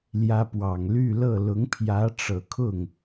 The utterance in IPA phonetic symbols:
l j ä˥ p w ɑ˨˩ ŋ l y˥˧ l ɤ˥˩ l ʊ˧˥ ŋ pʰ j ä˧˥ ʈ͡ʂ ɤ˨˩ kʰ ʊ˥˩ ŋ

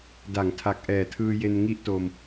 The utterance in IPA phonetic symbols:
d a˩˦ ŋ tʰ a˨˩ k̚ ʔ ɛː˨˩ tʰ ɯː˧ j e˧ n ŋ i˦˥ ʔ t o˧ m

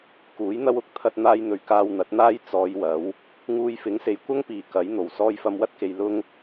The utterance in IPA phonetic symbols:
k uː˨˥ j n̪ ɐ˥ w ʊ˧ k̚ t̪ʰ ɐ˧ t̚ n̪ aː˧ j n̪ ɵ˨˩ ɥ k aː˧ w n̪ ɐ˨˥ t̚ n̪ aː˥ j t͡s ɔː˨˧ j w ɐ˨˥ w | ŋ uː˧ j f ɪ˨˥ ŋ s e˨ j kʷ ɐ˥ ŋ p iː˨˩ k ɐ˨˥ j n̪ o˨˩ w s ɔː˧ j f ɐ˧ m w ɐ˥ t̚ k e˨ j l ʊ˥ ŋ

